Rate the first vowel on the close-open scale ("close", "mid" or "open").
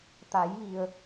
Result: open